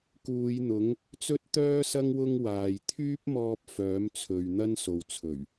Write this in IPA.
k uː˨˧ j n̪ ʊ˨˥ ŋ | t͡s ɵ˥ t̚ t̪ œː˥ s ɐ˥ ŋ w ʊ˥ ŋ w aː˨ j t̪ʰ yː˥ p̚ m ɔː˧ p̚ f œː˨˥ m t͡sʰ ɵ˨ ɥ n̪ ɐ˥ n s o˨ w t͡sʰ ɵ˨˩ ɥ

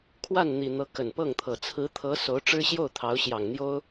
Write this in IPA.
kʰ w a˥˩ n n̪ i˨˩ n̪ ɤ˧˥ k ə˨˩ n p ɤ˥˩ ŋ t̪ʰ ɤ˨˩ t͡sʰ ɹ̩˧˥ t̪ʰ ɤ˧˥ s o˧˥ ʊ̯ ʈ͡ʂ ɻ̩˥ ɕ j o˥˩ ʊ̯ t̪ʰ ɑ˧˥ ʊ̯ ɕ j ɑ˨˩ ŋ n̪ j o˥ ʊ̯

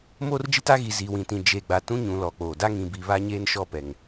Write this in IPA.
m oː˦ r d͡ʒ i˦ t a˦ ɣ i˨ z iː˨ w ĩ˨ t ĩ˨ d͡ʒ e˨ ɡ͡b a˨ t ũ˦ ɲ ũ˨ l ɔ˨ k͡p oː˨ d a˦ ŋ ĩ˨ b i˨ β a˦ ɲ eː˦ n ʃ ɔ˦˨ p ɛ˨ ŋ

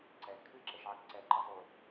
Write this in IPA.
ǀ ɛ kʰ ɨ ǁ ə ʃ ʕ ə k ǀ ɛ ǃ ə sˤ u

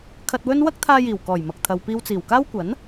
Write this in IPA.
kʰ ɐ˧ t̚ w ɵ˥ n w ɐ˥ k̚ t̪ʰ aː˧ j iː˨˩ w k ɔː˨˩ j m ɐ˨ k̚ t̪ʰ ɐ˨ w p iː˧ w t͡s iː˨˩ w k aː˥ w kʷ ɐ˨˥ n

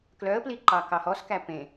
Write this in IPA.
k l œ ə̯ p l i ǃ ɑ k ɑ h ɔ s k æ p ẽ

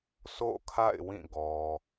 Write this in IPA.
s o̰˦˨ kʰ a̰˦˨ ɪ̯ w ĩ˦˨ ɡ ɔ˨

